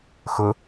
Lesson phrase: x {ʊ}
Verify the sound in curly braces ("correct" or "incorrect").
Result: correct